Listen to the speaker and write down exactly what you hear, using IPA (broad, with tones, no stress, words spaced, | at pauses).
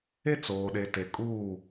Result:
e˦t͡soː˨ɗe˨te˨ kʼuː˦˨